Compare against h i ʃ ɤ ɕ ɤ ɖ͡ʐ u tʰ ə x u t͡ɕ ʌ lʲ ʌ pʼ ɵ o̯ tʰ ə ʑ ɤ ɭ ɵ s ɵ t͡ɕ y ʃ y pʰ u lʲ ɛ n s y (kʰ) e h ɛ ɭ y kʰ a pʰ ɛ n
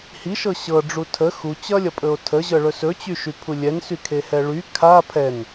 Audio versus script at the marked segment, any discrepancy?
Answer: no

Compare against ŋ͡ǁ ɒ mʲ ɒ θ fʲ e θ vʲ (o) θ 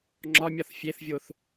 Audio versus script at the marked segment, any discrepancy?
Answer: no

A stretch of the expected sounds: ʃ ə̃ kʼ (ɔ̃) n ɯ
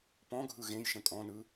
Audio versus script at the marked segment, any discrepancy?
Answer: no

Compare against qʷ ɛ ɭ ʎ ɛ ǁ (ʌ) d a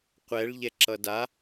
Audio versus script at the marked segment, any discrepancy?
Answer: no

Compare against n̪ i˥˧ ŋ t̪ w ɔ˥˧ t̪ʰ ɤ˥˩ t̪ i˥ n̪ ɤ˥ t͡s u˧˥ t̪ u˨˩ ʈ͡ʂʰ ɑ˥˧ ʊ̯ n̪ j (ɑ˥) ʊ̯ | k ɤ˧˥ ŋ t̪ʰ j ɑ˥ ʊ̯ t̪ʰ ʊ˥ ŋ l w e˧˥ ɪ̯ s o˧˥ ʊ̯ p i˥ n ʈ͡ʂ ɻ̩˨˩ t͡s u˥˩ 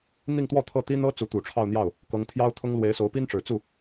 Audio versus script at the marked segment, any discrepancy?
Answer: yes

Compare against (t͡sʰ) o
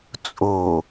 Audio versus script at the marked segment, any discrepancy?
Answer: yes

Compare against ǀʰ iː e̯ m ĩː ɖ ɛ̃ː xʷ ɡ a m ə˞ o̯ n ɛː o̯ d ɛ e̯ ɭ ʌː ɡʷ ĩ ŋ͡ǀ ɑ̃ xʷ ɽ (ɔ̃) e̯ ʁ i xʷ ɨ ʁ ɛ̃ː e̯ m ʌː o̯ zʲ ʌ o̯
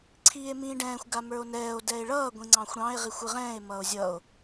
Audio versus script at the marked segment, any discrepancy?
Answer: yes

